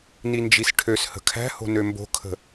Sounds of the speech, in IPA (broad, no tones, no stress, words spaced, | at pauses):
nind͡ʒisʈʰøshə̤ kʰæ̤ho̤ nømbo̤kʰə̤